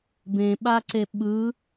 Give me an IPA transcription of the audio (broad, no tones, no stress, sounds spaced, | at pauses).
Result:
b ẽ ɓ a ǀ e ɓ ɯ